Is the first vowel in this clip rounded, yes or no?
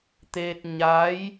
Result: no